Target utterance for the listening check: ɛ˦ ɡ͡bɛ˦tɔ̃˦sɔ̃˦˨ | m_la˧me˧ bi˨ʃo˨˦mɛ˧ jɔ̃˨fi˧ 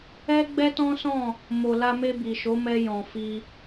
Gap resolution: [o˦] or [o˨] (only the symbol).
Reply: o˨